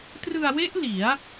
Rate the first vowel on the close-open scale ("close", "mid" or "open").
close